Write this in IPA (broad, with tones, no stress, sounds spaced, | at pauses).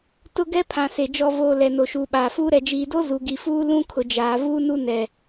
t ʊ˦ ɡ ɛ˦ pʰ ã˨ s e˨ d͡ʒ ɔ˨ v oː˨ l ɛ˨ n o˨ ʃ uː˨ ɓ aː˨ f uː˦ ɾ ɛ˨ d͡ʒ iː˨ d o˦ z u˨ ɡ i˨ f uː˦ l ũ˦ kʰ ʊ˨ d͡ʒ aː˨ v uː˦ n u˦ n ɛ˨